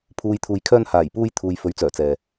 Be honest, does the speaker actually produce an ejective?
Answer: no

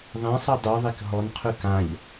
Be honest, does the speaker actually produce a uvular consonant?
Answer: yes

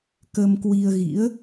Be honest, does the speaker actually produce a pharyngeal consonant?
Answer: no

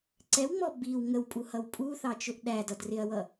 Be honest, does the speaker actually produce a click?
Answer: yes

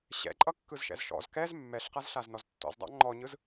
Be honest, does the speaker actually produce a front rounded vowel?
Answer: no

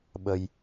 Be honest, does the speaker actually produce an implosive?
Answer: yes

